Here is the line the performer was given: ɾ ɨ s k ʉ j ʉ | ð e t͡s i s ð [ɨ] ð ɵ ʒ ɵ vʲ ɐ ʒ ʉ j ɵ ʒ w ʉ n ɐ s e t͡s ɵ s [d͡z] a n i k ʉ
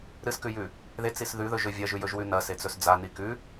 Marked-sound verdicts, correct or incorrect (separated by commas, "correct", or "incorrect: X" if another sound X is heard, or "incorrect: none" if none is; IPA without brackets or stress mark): incorrect: ʉ, correct